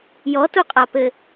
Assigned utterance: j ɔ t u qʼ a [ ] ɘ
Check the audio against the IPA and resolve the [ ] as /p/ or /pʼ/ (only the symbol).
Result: p